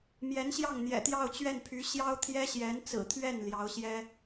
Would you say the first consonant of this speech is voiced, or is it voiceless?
voiced